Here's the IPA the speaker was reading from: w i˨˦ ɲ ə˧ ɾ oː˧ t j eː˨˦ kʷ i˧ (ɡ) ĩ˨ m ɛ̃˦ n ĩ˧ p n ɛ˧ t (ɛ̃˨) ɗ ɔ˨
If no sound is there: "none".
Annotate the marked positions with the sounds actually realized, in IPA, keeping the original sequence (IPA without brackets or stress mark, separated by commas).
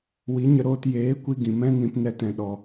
ɡ, ɛ̃˨